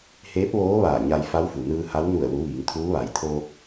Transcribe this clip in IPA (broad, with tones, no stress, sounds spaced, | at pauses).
h eː˧˥ p̚ ʋ oː˧˥ ʋ aː˧˩ ɲ a˧ j f a˧˥ w f u˩ n ɯː˧ h a˧˥ w n u˧˩ ə̯ l u˩˧ ʋ iː˩˧ ŋ t̪ʰ uː˧˥ ʋ a˩ j t̪ʰ oː˧ k̚